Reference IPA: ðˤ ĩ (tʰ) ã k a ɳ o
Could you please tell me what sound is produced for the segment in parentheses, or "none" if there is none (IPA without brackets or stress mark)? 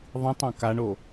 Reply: tˤ